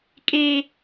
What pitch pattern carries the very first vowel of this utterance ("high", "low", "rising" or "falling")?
high